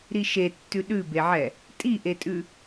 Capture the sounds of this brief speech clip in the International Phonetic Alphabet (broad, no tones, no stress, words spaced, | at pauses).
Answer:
ɾiʃetːʉ ɗʉbeʕɛ | tʼiʔetʼʉ